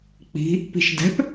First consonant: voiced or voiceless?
voiceless